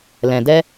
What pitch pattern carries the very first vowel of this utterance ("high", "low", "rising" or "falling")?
low